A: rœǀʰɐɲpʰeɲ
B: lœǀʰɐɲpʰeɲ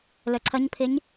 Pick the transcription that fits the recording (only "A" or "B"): B